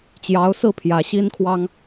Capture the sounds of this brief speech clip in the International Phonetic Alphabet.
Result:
t͡ɕ j ɑ˧˥ ʊ̯ s ɹ̩˥˩ pʰ j ä˧˥ ɕ i˥ n kʰ w ɑ˥ ŋ

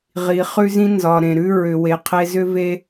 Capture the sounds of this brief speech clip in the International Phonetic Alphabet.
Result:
ʁ i˨ χ ʉ˧ z ĩ˧ n z ɒ˨ ɾ ẽ˨ ɾ ʉ˧ ɹ ʏ˨ w e˨ qʰ e˧ z ʏ˧ v e˧

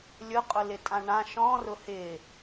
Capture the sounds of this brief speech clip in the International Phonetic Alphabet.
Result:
lʲ ʊ qʼ ʊ l ɪ tʼ ã ɳ ã ʃ ɔ̃ r ʊ h ɪ

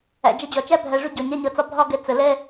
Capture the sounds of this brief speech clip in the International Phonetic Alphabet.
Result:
æ̰˨ d͡ʒ ʌ˧ d͡ʑ ɒ˨ t͡ʃ æ˦ bʱ æ˨ ʐ ʊ˧ ɟ ɒ˨ ɲ æ˦ ɲ ʌ˧ t͡s ɒ˦ bʱ ɒ˦ ɡ ɛ˧ t͡s ə˧ l ɛ˦

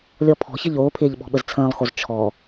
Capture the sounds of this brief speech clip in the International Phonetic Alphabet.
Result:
lʲ ɔ pʰ ɔ̤ ç ɘ ʎ oː pʰ ɪː ʎ ɓ ɔ̤ ɓ ə z t͡sʰ ə̃ː lˠ x o z t͡ʃʰ ɔ

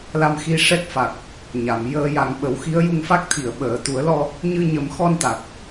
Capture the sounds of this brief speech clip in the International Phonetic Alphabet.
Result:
l a˧ m x i˧ ʂ ɛ˦˥ k̚ f a˨˩ k̚ | ɲ a˨˩˨ m j əː˧ j a˨˩ ŋ ɓ ə˨˩˦ w x i˧˥ ə̯ j u˧ ŋ f a˦˥ k̚ t̪ʰ i˨˩˨ ə̯ ɓ əː˨˩˨ t̪ u˨˩˦ ə̯ l ɔ˧ | ɲ ɨ˧ ɲ ə˨˩˦ m x ɔ˧ n t̪ a˨˩ k̚

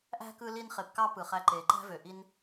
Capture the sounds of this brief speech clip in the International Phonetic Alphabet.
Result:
ʔ æ̤˦ k ɯ˧ l i˧ n χ e˨ p k ɑ˦ p ɯ˨ χ æ˧ ǃ eː˨ ǃ æ̤˦ v ø˨ ʔ i˧ n

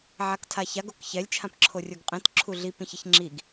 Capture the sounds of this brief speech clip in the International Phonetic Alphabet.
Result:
ʕ a k tʰ a ç a ɡ o k ç ɛ lʲ t͡ʃʰ ã p ǁʰ o rʲ o ɡ qʼ ĩ t ǁʰ u ɮ i p ĩ ç ɪ ç ŋ͡ǁ i ɡ

